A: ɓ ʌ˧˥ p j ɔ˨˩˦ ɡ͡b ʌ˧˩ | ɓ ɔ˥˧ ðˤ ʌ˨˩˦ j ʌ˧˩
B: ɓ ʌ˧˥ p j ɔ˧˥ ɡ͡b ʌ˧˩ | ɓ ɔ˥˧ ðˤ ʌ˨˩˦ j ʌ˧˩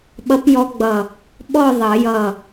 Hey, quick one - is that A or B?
B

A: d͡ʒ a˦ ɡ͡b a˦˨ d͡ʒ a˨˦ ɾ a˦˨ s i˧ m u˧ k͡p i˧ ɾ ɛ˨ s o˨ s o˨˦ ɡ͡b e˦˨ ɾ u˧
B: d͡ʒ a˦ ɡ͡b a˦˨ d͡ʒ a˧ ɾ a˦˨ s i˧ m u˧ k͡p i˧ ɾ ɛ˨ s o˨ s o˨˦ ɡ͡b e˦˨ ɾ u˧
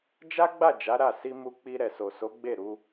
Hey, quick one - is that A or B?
A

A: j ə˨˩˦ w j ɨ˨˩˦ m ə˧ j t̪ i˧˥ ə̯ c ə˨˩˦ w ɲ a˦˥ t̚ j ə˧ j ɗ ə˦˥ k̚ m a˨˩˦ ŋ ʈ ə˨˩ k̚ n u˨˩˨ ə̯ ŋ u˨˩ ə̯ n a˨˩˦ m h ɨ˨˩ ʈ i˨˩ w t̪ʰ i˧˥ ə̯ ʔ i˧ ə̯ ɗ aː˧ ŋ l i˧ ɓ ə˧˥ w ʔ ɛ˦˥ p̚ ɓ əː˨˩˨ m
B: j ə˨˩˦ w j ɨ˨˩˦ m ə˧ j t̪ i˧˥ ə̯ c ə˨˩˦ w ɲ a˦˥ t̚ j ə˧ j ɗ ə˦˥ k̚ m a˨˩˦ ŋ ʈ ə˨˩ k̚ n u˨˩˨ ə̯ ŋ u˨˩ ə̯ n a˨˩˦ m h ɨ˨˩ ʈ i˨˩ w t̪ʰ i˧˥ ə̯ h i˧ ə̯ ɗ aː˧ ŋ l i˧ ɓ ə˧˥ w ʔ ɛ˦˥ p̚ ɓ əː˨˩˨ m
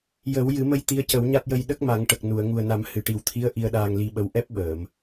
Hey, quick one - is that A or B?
A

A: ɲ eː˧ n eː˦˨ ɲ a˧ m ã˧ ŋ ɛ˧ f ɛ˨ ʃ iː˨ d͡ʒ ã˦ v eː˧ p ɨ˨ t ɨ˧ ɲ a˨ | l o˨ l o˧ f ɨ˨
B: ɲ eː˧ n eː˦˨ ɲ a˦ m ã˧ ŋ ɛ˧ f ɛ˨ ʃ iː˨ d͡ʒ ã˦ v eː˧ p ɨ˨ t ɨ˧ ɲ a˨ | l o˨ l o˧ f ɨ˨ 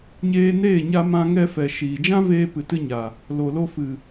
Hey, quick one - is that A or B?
A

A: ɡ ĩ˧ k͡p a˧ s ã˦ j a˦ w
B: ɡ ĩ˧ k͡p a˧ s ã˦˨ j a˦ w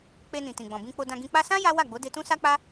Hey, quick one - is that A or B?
A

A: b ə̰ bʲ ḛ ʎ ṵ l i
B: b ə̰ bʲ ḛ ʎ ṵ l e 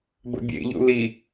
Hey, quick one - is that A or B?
A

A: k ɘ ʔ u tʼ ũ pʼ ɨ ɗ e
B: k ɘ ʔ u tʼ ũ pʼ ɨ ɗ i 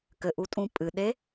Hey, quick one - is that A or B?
A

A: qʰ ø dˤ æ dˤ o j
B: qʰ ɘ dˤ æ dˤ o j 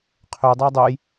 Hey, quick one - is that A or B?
A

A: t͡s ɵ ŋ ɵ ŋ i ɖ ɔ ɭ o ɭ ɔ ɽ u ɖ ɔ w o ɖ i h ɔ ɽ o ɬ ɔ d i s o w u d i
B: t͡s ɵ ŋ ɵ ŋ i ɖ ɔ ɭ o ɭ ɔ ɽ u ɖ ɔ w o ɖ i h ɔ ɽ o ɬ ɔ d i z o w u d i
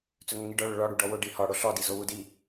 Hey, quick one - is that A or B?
B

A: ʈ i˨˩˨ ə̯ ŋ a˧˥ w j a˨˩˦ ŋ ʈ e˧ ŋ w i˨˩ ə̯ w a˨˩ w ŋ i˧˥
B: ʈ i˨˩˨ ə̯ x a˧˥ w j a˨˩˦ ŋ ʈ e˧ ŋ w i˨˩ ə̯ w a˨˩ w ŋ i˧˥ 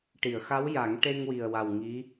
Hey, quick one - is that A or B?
B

